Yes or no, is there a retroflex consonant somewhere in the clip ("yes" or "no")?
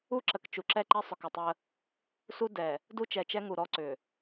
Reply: no